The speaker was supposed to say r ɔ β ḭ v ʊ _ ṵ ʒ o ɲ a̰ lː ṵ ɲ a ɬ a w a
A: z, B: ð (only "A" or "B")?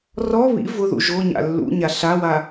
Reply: B